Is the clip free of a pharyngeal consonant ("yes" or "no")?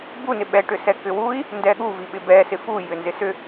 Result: yes